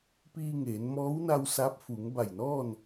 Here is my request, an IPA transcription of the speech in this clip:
p iː˧ ŋ eː˩˧ n m ɔː˧˥ w n a˧ w s a˧˥ p̚ f u˩˧ ŋ b a˧˩ j n ɔː˥˨ n

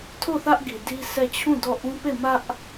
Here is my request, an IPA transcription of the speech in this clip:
tʰ o˦˨ θ ä˦ ʔ ɡ i˨ d i˦ sʰ ɛ˦˨ t͡ɕʰ ũ˦˨ d ɔ˦˨ ʔ ũ˦ p e˦˨ m ä˦ ʔ

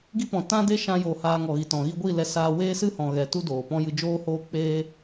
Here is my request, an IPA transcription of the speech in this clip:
ɡ i˦ p ɔ̃˨ t ã˦ d e˦ ʃ ã˧ j oː˨ h aː˧ ŋ ɔ˨ ɣ i˨ t ɔ̃˨ ɣ i˧ ɡʷ i˦˨ l ɛ˧ s aː˧ w eː˦ s ɨ˦ h ɔ̃˨ ɣ ɛ˨ t u˦ d oː˨ p ɔ̃˦ j ɨ˧ d͡ʒ oː˦ h oː˦ k͡p eː˦

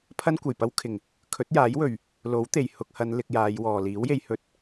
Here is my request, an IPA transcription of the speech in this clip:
pʰ ɐ˥ n kʷ ɐ˨˩ j p ɐ˥ w kʰ ɪ˨˩ ŋ | kʰ ɵ˨˥ t̚ j aː˨˥ j w ɵ˨˩ ɥ | l o˨˥ w t̪ e˨˩ j h ʊ˧ k̚ h ɐ˨˧ n l ɪ˧ k̚ j aː˨˧ j w ɔː˨ l iː˨˥ w j e˨˧ j h ɵ˧ t̚

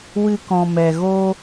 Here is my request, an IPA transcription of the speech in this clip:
w ɨ˧ k ɔ̃˨ m ɛ˨ ɣ o˦

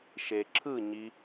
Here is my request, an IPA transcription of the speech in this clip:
ʃ e ǁʰ ɯ ɲ i

